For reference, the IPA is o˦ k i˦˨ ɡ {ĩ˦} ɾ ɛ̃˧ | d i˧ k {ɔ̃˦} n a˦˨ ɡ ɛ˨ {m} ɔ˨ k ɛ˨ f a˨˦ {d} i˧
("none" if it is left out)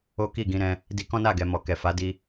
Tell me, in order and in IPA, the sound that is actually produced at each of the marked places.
ĩ˧, ɔ̃˦, m, d

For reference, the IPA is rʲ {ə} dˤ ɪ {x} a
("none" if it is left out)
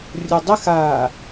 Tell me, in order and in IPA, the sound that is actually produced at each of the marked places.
ʊ, x

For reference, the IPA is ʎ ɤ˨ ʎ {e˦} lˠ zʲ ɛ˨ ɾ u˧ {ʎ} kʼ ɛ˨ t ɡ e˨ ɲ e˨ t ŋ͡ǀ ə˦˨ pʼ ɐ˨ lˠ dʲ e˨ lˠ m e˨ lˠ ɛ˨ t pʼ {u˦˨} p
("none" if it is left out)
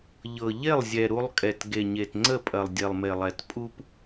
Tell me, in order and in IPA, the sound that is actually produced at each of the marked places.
e˦˨, lˠ, u˦

